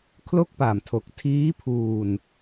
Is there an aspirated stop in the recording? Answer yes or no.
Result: yes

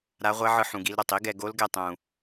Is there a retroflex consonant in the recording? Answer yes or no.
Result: no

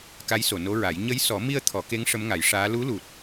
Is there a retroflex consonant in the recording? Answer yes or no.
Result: yes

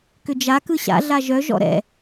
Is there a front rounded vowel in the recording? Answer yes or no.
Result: yes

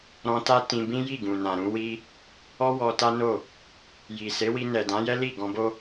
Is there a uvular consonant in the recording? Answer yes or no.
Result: no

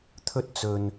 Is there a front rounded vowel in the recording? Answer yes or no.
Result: no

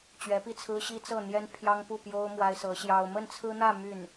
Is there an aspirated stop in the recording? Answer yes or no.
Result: yes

